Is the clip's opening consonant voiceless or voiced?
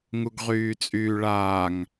voiced